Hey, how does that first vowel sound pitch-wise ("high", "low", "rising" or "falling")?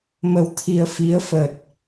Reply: low